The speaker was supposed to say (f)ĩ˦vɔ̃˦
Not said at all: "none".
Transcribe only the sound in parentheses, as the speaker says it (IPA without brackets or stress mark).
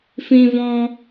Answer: f